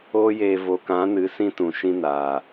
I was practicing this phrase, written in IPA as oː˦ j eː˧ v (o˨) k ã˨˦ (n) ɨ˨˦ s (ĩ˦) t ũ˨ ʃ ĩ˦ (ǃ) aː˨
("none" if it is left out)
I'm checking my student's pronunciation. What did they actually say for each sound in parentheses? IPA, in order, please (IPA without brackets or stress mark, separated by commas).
o˨, n, ĩ˦, n